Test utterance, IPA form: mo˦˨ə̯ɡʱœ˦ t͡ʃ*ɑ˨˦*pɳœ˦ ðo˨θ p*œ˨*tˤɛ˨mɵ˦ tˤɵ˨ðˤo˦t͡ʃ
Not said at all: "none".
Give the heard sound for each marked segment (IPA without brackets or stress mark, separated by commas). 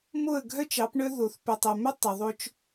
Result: ɑ˨˦, ɵ˨